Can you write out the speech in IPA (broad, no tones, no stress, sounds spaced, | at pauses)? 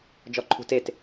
d͡ʒ ɔ ǃʰ ṳ t e t